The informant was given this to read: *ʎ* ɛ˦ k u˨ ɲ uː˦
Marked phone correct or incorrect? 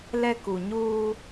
incorrect